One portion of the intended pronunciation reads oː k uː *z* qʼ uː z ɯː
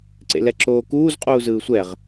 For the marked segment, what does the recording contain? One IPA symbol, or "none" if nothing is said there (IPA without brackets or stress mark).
z